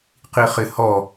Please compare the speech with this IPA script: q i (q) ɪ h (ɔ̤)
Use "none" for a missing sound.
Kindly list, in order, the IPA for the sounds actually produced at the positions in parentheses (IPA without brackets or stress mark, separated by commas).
χ, ɔ